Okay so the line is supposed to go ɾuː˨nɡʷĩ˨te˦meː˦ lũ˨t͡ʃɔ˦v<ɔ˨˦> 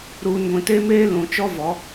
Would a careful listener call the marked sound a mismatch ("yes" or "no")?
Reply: no